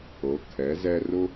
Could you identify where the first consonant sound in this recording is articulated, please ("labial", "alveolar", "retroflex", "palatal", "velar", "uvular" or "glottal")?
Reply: velar